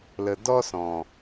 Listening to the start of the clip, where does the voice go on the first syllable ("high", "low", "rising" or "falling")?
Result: low